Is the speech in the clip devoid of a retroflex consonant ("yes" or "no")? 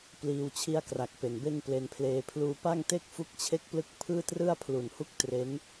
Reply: yes